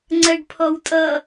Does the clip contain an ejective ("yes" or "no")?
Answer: yes